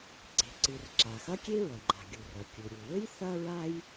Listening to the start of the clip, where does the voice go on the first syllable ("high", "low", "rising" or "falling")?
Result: low